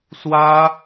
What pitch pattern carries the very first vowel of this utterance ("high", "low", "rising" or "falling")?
high